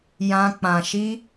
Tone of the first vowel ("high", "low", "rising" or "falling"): high